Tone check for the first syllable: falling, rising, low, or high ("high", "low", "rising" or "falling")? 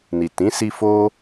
low